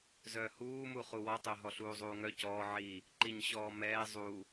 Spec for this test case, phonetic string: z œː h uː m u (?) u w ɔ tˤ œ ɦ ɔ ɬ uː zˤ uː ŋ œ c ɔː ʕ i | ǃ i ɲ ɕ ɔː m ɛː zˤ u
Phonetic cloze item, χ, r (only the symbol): χ